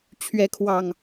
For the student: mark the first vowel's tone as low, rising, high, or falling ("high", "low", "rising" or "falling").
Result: rising